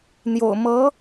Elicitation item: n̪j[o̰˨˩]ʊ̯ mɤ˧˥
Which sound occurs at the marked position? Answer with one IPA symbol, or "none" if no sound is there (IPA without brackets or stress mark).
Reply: o̰˨˩